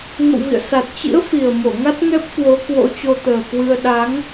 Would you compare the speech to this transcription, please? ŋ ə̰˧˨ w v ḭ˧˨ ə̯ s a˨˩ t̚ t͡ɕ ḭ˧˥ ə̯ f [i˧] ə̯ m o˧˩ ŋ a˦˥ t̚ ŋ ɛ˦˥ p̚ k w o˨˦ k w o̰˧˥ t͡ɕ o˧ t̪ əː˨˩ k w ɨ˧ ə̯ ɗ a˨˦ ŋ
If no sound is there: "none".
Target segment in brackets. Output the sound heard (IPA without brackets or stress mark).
i˨˩